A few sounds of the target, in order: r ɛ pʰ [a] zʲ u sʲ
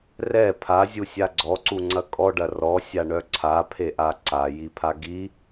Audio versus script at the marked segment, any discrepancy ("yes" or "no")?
no